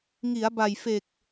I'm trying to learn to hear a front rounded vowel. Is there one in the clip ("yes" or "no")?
no